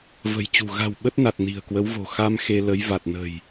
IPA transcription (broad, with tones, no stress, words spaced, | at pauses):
və̤˨˩jt͡ɕṳ˨˩ ɣa̤˨˩w ɓə˦˥t̚na˨˩t̚ ni̤˨˩ə̯kwə˨˦wvo̤˨˩ xa˧m xe˧lə˨˦j va˨˩t̚nə̤˨˩j